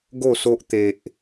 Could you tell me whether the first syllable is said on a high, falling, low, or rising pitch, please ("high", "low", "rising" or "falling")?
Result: falling